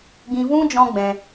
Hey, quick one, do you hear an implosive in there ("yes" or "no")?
no